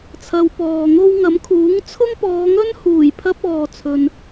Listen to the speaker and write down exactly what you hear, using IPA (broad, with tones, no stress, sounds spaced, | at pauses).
t͡sʰ ɐ˨˧ w p ɔː˨ ŋ o˥ w ŋ ɐ˨˥ m kʰ uː˨˥ ŋ t͡sʰ ʊ˥ ŋ p ɔː˨˧ ŋ ɵ˥ n h uː˨˩ j pʰ ɐ˧ p̚ ɔː˨ t͡sʰ ɵ˨ n